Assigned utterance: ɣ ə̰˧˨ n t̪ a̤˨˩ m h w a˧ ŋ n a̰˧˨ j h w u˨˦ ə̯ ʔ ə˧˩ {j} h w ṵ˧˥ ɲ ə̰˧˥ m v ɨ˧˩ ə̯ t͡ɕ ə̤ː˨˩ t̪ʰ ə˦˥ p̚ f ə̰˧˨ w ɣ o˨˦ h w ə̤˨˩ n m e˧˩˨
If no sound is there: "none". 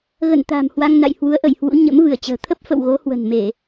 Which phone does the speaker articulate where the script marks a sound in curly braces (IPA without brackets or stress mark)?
j